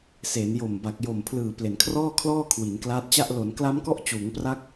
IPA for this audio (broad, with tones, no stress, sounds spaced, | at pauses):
s eː˩˦ n j o˨˩ m b a˨˩ k̚ j o˨˩ m pʰ l ɯː˨˩ p l e˩˦ n kʰ r ɔː˥˩ kʰ l ɔː˥˩ kʰ w i˩˦ n k l aː˦˥ t̚ t͡ɕ a˥˩ ʔ l o˩˦ n k l a˦˥ m k ɔ˦˥ ʔ t͡ɕ uː˩˦ ŋ p r a˦˥ k̚